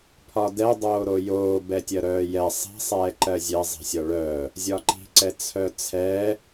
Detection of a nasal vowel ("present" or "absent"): absent